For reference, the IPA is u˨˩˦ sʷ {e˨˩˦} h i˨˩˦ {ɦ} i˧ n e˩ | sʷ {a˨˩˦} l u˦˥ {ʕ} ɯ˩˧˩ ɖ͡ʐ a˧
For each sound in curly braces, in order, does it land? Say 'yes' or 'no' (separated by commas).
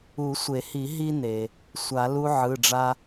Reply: yes, yes, yes, yes